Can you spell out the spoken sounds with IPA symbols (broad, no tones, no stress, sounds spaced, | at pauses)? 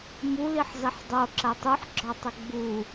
m u l i ħ z ɐ ħ dˤ o ǁ ɐ tˤ u ħ ɡ͡ǁ ɒ tˤ ɘ ɡ͡b u